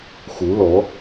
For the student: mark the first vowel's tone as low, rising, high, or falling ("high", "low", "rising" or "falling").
rising